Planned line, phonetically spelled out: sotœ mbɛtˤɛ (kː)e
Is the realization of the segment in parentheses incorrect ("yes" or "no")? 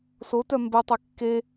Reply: no